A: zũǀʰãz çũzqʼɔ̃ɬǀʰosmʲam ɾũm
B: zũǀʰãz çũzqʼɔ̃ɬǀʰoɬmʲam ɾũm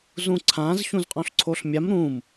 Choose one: B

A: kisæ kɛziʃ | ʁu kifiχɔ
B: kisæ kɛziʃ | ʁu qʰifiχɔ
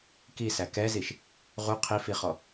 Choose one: B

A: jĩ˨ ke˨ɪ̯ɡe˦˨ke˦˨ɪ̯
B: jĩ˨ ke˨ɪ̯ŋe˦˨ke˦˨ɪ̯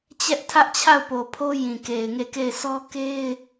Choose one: B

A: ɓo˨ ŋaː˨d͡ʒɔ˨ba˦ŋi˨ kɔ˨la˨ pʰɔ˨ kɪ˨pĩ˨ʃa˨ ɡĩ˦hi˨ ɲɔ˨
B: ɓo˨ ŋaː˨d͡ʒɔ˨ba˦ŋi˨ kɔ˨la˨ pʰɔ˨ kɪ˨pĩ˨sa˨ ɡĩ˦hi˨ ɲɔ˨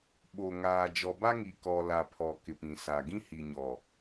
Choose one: B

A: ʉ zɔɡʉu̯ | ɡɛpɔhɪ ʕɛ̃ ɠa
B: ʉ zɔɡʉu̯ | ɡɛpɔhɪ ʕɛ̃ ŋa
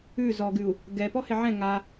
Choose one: B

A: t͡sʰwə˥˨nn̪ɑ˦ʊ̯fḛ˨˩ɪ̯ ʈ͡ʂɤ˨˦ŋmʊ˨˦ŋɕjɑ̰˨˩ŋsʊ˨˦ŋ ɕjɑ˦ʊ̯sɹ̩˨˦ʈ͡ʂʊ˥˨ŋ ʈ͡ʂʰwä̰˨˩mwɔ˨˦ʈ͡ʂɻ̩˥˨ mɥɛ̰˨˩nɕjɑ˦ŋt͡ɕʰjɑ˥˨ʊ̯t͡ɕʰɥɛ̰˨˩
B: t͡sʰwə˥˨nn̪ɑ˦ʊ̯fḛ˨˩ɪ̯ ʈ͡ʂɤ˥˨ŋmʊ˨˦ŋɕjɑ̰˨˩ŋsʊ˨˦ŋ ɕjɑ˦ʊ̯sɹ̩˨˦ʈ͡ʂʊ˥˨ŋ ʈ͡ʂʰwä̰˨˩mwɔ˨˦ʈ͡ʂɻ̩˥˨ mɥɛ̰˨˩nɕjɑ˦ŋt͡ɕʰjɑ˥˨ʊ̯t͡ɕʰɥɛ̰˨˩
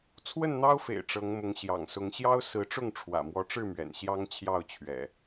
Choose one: A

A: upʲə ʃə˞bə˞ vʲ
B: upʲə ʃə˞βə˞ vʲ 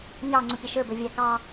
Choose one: A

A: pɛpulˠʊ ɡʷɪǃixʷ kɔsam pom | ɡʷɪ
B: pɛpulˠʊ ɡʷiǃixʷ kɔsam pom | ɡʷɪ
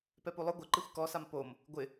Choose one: A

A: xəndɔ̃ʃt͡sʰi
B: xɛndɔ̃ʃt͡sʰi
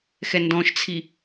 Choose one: B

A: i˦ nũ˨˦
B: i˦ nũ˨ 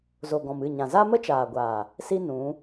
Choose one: A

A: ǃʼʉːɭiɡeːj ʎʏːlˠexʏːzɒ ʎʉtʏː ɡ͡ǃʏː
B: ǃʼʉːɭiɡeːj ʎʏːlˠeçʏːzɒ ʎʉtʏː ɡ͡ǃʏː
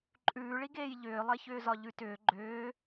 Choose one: B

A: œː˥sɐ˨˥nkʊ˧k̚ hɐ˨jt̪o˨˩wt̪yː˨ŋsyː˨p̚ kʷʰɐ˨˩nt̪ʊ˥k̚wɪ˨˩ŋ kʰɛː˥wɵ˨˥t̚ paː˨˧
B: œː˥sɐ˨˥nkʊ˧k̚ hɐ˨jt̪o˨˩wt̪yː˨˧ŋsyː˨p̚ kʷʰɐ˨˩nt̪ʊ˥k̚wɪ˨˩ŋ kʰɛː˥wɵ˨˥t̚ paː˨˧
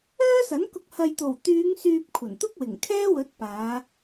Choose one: B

